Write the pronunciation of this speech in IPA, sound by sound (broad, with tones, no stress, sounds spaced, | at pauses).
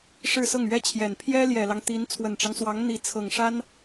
ʂ ɻ̩˥˧ s ɤ˥˩ ŋ ɥ ɛ˥ t͡ɕʰ j ɛ˨˩ n pʰ j ɛ˥ l j ɛ˨˩ l ɑ˦ ŋ t̪ i˧˥ n t͡sʰ w ə˨˩ n ʈ͡ʂ ɑ˦ ŋ s w ɑ˧˥ ŋ n̪ i˧˥ t͡sʰ ɤ˨˩ ŋ ʂ a˥ n